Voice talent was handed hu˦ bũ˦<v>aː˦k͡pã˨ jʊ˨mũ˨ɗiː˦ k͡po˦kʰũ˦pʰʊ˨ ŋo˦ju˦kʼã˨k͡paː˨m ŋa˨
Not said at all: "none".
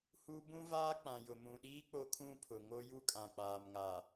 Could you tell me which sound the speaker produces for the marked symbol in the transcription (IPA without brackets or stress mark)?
v